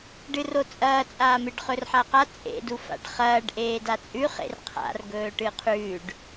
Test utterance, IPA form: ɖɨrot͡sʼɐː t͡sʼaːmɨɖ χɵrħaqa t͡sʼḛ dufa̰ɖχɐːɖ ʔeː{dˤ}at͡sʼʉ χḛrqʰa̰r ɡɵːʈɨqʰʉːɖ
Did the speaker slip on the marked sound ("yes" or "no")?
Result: yes